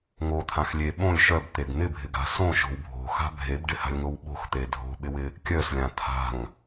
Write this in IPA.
ŋ o t̪ʰ ã x lʲ e ɓ õ lʲ ʃ œ b t̪ e ɡ n̪ ɪ bʱ ɪ ɡ a̤ s õ ʃ o̤ w bʱ o̤ x a̤ bʱ e b ɖ ɪ h a̤ lʲ ŋ o w ɓ o̤ x t̪ e dʱ o̤ ɓ ɪ w ɪ | kʲ œ s lʲ ã t̪ʰ a̤ ŋ

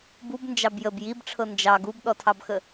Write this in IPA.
b u b n d͡ʒ ɑ b j ə b j i b ʈ͡ʂʰ ɤ n d͡ʒ ɑ ɡ u b ɗ ɔ tʰ ɑ b x ə

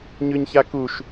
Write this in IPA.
ɲ ʉ ɲ ç a k u ʃ

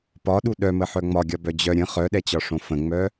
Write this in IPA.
p ɒ ɗ u ɗ œ m ə ħ œ ŋ͡m ɒ ɡʲ ɒ b œ d͡ʑ œ ɾʲ ə̃ χ œ ɗ ɛ t͡ɕ ɒ ʂ õ f ə̃ ŋ͡m œ

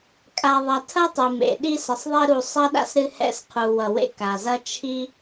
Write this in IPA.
kʼ a˨ ðˤ ɐ˨ tʰ ɐ˥ tˤ ɨ˩ m ḛ˩ ɗ i˦ s ə˨ sˤ ðˤ e˦ ɾ u˨ sˤ ɐ˥ ɗ a̰˥ s ɾ ɨ˦ h ɛ̰˦ s qʰ u˨ w ʌ˨ w ḛ˥ k a˩ z ɐ˦ t͡ʃʰ i˥

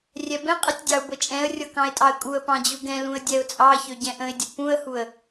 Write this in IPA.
rʲ ɛ b ɛ̃ qʼ ɨ tʲ dʲ ɑ ʊ̯ b ɤ t͡ʃʼ ɛ̃ ə̯ rʲ ɤ k ɑ̃ ɪ̯ tʼ ɑ ə̯ kʼ u ə̯ p ɑ̃ d͡ʑ u ɡ ɛ̃ l ũ ə̯ dʲ ɛ ʊ̯ t͡sʼ ɑ ç ø ɟ ɛ̃ ʔ ə̃ ɪ̯ dʲ ə p ũ ə̯ h u ə̯

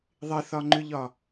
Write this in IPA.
ðˤ ɪ θ ɒ ŋ͡ǃ ʏ ʎ ɒ

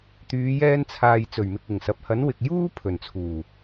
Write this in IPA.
t̪ yː˨˧ j ɛː˧ n t͡sʰ aː˨ j t͡s ɵ˨˩ ɥ m ɪ˨ k̚ ɪ˨˩ ŋ s ɐ˨ p̚ h ɐ˨˥ n w ɪ˨ k̚ j uː˥ pʰ ɵ˨˩ n t͡sʰ uː˨˩

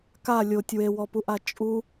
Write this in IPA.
k a lʲ o tʲ w e w ɔ p u ʔ a t͡ʃʼ u

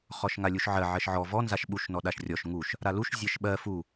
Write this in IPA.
χ ɔ ʃ ŋ a lʲ u ʃ ʕ ɜ ʕ ɜ ʃ ʕ ɔ v ɔ n z a ʃ ɓ u ʃ n ɔ ɗ a ʃ rʲ ɔ ʃ ŋ u ʃ | ɾ a l u ʃ zʲ ɜ ʃ ɓ ɜ f u

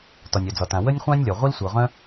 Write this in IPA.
t ɒ˩ nʲ œ˩ d͡z ɒ˩ t ã˩ w ə˥ nʲ χʷ ã˥ nʲ lʲ ɒ˩ ʁʷ i˥ l sʷ ɤ˩ ʁ œ̃˥

